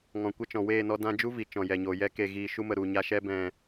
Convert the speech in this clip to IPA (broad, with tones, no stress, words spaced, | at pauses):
ŋɔ̃˨ kʷə˦˨t͡ʃɔ̃˨ weː˦˨nɔ˧ dã˧d͡ʒu˦ vi˨t͡ʃɔ̃˨jɛ˨ɲoː˨ jɛ˧ ke˨ɣiː˨ ʃu˦mə˨ ɾu˨ɲa˧ʃɛ˦ bɛ̃˨